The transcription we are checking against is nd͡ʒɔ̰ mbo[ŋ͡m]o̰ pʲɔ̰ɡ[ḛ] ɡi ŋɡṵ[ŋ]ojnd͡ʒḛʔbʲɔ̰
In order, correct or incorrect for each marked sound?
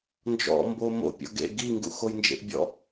incorrect, correct, incorrect

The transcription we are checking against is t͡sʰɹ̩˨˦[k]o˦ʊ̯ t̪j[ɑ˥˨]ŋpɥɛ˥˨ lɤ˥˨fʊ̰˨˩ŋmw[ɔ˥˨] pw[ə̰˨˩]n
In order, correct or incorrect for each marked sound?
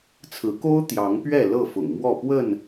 correct, incorrect, correct, incorrect

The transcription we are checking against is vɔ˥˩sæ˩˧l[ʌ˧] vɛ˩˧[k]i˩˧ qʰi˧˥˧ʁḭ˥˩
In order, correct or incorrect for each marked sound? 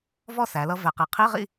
correct, incorrect

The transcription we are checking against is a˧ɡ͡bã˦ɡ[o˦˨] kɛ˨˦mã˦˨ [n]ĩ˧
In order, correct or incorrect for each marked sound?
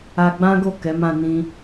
correct, correct

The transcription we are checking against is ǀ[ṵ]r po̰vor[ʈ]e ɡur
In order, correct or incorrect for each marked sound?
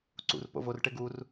correct, correct

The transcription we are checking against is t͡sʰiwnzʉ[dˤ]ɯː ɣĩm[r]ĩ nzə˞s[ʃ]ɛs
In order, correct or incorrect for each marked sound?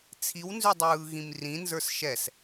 correct, correct, correct

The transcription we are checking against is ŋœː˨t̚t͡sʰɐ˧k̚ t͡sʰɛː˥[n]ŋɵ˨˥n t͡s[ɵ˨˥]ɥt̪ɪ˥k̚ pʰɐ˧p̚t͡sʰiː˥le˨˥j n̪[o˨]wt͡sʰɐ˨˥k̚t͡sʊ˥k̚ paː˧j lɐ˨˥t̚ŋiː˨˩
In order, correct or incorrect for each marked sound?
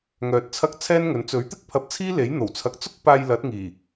correct, correct, incorrect

